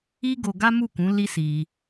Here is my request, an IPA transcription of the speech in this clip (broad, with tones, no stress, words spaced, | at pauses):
i˦ɡo˧ɡa˦ mu˦˨kũ˨˦ li˦si˧